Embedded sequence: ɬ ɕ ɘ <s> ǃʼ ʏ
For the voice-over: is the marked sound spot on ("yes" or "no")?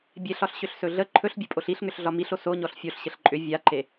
no